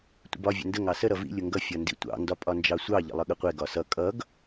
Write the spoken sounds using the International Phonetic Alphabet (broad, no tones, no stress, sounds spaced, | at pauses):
tʷ ə̰ b ɒ vʲ ə̰ n d ə ŋ ɑ s ə ɾ ʌ v ḭ lʲ ʊ ŋ ɡ ʌ fʲ ʌ n d ḭ tʷ ɑ̰ n d ɒ pʼ ɒ n d͡ʒ ɑ sʷ ɑ ʎ ə̰ lˠ ʌ ɠ ə qʷ ɛ ɡ ɒ s ʌ kʼ ʌ ɡ